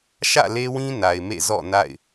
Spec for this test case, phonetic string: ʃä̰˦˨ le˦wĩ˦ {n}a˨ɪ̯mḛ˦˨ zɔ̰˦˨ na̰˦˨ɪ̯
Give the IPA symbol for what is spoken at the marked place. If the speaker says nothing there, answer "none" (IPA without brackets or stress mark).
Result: n